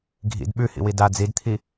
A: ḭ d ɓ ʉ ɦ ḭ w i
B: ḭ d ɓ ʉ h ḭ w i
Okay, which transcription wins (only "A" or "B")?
B